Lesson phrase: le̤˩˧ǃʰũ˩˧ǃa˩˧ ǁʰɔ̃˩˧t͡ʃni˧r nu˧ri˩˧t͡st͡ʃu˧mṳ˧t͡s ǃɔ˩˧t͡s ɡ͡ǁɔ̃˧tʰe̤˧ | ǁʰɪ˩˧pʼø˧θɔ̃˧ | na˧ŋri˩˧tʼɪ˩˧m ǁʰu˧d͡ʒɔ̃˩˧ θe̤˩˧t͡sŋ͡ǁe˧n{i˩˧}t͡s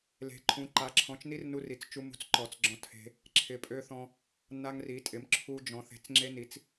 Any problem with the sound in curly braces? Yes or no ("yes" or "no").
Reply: no